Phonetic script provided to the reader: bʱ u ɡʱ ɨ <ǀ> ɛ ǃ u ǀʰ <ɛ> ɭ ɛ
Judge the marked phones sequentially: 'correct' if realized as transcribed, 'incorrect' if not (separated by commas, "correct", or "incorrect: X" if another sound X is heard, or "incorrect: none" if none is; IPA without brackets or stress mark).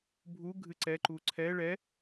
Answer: correct, correct